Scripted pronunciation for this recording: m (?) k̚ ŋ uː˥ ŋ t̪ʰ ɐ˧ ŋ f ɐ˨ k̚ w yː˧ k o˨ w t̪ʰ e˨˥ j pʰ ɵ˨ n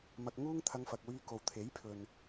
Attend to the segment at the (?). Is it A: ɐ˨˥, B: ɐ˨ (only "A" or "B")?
B